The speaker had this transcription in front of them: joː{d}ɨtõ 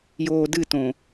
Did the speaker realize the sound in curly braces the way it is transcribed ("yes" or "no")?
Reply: yes